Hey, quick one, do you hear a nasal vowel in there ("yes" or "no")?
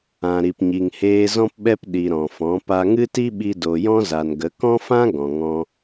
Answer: yes